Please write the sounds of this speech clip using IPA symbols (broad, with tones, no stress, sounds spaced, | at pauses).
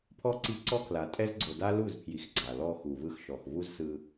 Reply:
pʰ ɔ˦˨ ǀ i˧ ǀ ɔ˦ kʰ l a˨ tʼ ɛ˦ z ɡ͡ǀ o˨ d a˦ l u˦˨ z pʰ j i˨ x ɡ͡ǀ a˨ l ɔ˧ x u˨ v ɯ˧ x ʃ ɔ˨ x v u˦ z s ɯ˧